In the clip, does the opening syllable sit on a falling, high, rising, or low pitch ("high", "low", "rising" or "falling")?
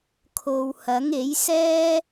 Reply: low